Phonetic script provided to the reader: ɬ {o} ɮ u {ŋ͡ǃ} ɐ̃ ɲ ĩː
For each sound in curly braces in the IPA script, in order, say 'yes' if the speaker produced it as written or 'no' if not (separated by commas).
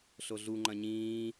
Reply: yes, yes